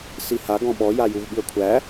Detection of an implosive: present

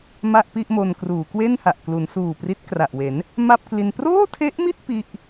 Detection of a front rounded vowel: absent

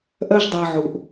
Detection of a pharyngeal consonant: present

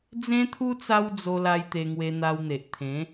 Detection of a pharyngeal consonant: absent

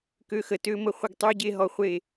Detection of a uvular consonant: present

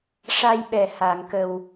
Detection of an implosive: present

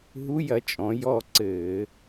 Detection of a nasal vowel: present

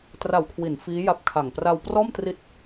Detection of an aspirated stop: present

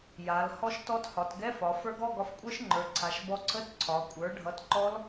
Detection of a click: present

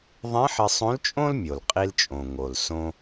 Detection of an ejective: present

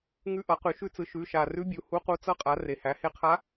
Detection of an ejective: present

